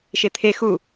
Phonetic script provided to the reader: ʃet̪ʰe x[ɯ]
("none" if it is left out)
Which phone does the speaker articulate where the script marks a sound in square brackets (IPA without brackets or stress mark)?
u